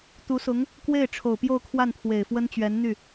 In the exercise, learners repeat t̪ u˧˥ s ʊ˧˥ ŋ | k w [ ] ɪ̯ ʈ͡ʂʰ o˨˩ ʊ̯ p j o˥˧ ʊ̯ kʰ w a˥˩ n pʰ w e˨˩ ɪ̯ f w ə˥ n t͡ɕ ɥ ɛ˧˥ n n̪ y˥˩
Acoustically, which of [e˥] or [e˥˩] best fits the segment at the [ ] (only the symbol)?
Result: e˥˩